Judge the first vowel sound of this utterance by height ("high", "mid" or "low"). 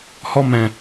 mid